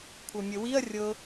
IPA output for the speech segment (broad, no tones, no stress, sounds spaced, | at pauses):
kʷʰ ɤ mʲ ə w i ɐ̯ rʲ ɤ